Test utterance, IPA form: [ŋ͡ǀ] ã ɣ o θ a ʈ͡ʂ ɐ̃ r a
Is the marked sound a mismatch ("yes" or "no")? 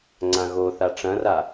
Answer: no